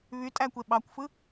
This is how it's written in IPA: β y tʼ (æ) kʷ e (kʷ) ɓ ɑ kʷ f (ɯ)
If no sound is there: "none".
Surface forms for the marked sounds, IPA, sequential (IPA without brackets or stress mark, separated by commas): æ, none, ɯ